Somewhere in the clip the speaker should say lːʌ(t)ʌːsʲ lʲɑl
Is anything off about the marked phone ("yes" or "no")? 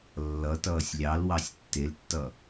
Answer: no